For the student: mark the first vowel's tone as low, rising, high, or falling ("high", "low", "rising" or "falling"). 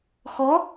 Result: rising